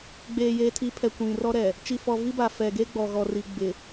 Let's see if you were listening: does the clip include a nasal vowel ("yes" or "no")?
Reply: yes